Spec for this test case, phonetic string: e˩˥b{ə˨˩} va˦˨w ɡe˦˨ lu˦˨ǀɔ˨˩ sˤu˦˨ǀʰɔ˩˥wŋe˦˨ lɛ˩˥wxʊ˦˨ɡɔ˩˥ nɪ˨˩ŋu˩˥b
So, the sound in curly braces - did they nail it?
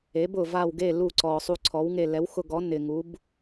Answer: no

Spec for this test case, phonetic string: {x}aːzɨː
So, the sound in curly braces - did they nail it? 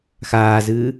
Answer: yes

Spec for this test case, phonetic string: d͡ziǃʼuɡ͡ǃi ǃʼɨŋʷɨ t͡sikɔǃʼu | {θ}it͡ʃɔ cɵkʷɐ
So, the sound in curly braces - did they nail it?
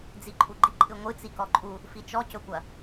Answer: no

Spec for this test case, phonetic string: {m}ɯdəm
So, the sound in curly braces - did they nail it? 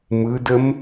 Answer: yes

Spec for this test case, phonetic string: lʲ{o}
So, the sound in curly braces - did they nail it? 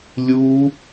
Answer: no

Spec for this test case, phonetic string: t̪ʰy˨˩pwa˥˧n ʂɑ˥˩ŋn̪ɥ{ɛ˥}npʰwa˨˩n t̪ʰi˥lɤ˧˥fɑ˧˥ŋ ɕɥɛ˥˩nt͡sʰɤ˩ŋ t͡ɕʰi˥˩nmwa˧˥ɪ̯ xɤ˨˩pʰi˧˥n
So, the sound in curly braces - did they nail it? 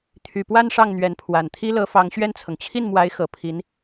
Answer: no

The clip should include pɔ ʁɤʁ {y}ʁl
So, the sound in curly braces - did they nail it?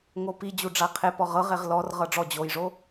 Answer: no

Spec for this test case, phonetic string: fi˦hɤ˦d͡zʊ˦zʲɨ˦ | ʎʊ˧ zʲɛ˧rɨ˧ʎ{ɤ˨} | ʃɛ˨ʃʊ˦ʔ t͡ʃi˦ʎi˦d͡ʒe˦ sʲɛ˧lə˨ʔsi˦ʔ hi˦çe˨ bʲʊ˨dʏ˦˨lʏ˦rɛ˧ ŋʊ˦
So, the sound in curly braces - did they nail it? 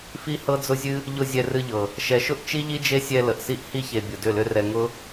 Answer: yes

